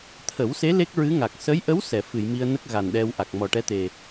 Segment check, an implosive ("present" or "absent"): present